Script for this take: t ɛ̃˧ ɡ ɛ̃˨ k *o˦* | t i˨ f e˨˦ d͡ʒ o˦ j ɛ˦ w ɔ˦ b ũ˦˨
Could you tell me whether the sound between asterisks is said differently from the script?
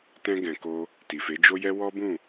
yes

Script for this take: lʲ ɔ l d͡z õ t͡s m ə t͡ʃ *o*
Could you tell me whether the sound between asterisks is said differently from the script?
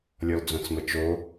no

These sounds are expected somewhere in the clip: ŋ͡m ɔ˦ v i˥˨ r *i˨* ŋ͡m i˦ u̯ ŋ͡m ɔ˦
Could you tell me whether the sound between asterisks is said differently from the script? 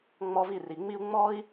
no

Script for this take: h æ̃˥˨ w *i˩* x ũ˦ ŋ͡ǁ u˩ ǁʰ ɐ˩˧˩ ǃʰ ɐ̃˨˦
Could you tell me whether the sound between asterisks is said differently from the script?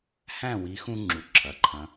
yes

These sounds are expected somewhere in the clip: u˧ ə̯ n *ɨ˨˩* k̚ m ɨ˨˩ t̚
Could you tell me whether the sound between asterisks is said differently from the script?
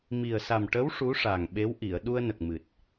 yes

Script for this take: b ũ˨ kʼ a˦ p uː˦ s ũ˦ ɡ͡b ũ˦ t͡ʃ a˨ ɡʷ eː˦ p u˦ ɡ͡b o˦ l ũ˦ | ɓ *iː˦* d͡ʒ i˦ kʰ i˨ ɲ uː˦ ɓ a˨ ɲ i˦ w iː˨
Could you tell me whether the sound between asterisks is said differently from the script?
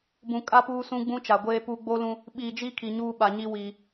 yes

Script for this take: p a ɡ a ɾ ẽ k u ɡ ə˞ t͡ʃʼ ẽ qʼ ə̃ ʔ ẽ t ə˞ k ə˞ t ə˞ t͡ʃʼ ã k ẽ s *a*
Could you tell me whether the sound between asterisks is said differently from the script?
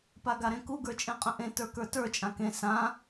yes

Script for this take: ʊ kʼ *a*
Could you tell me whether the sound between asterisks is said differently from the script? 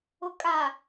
no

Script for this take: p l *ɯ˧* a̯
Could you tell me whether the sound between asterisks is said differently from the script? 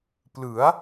yes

